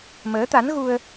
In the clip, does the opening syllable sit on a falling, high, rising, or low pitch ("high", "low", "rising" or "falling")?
rising